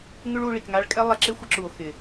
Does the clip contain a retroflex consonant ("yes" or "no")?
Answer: yes